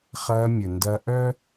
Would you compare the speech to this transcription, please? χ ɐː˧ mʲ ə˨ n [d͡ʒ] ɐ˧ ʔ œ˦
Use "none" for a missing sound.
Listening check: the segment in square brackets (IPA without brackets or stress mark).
d